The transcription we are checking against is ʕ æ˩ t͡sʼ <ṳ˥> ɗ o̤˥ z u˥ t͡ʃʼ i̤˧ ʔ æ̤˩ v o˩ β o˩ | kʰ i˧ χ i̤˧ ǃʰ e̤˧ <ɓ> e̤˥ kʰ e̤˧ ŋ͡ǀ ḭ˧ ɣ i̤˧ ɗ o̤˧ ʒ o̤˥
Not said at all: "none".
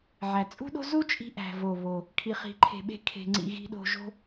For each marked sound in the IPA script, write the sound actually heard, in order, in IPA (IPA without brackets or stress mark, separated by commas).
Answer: ṳ˥, ɓ